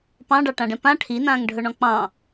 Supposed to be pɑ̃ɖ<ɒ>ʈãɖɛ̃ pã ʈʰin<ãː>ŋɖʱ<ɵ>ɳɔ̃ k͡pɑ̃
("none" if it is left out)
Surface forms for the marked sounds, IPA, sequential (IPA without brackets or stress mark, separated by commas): ɑ, ãː, ɵ